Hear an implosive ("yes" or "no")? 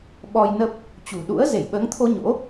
yes